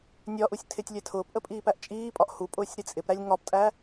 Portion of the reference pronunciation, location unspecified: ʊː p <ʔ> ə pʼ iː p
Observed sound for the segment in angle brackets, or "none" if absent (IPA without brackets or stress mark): ʔ